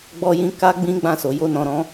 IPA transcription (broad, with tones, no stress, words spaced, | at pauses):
ɡ͡bɔ˧jĩ˧ ka˦ɡ͡bĩ˦ɡ͡bã˦˨ so˨ jo˧nɔ̃˨ɾɔ̃˨˦